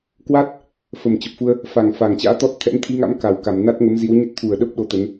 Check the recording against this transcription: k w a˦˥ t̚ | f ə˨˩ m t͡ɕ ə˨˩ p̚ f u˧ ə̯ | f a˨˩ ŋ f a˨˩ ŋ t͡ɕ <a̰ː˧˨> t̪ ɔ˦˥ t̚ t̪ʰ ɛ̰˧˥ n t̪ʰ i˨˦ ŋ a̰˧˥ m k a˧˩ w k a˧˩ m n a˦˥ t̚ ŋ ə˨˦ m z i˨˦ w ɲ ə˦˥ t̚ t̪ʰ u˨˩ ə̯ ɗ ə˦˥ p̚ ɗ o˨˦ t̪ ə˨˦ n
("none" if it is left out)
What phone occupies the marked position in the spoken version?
a̰ː˧˥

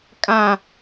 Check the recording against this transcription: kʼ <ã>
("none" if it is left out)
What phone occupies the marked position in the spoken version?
ã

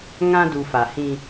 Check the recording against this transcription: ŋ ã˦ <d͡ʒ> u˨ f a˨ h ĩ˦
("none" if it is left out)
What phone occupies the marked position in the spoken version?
d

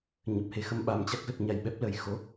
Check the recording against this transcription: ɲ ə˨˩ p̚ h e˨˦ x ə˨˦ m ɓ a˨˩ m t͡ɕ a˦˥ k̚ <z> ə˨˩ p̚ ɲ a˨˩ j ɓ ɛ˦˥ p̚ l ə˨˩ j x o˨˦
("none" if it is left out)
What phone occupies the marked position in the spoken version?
z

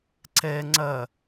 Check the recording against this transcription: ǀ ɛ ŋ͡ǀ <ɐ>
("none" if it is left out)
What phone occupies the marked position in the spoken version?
ɐ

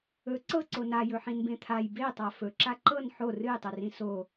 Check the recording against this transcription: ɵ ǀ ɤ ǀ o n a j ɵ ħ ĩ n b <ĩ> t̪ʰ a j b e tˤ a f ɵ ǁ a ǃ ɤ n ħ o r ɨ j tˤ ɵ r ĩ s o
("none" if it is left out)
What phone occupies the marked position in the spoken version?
ẽ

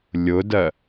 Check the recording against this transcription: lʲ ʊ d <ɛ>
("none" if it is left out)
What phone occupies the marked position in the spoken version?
ɜ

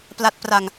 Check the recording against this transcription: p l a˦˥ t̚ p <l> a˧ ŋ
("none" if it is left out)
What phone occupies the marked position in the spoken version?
r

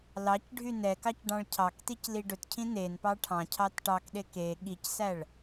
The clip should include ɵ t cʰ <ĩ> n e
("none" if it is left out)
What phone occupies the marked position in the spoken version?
ĩ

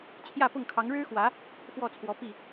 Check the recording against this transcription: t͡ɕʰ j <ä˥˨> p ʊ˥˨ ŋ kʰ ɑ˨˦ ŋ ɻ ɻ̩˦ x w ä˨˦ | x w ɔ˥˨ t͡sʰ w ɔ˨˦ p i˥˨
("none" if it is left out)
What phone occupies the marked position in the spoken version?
ä˥˨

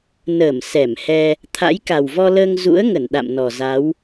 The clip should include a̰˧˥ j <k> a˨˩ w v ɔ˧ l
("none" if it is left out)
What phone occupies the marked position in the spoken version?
k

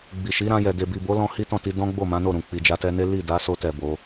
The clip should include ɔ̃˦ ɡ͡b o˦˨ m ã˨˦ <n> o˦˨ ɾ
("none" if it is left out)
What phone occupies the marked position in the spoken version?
n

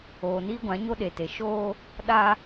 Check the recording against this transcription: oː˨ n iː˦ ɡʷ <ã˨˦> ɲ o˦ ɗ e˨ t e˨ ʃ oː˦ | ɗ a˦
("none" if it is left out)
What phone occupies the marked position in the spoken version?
ã˨˦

